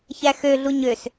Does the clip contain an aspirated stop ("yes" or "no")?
no